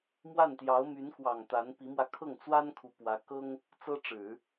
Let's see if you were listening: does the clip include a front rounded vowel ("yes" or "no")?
yes